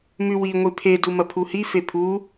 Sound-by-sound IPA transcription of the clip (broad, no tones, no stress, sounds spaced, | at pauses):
m ʉ w i ŋʷ i pʰ e d u m ɐ pʰ u h i f e pʰ u